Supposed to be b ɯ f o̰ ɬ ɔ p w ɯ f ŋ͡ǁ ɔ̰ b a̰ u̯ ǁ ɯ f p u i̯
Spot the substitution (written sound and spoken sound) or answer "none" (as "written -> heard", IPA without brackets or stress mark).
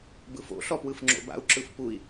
ɔ̰ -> o̰